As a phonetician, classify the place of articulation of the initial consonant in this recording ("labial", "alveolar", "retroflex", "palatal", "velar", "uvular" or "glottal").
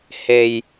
glottal